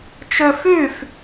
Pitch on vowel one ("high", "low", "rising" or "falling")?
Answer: high